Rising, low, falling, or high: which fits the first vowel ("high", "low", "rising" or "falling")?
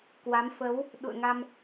rising